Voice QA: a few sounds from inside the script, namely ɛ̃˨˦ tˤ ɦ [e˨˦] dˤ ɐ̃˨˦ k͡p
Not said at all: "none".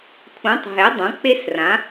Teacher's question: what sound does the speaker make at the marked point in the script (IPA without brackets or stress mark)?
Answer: e˨˦